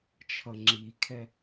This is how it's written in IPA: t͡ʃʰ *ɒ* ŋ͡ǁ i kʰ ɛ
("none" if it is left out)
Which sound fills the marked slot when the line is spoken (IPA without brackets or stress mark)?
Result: ʌ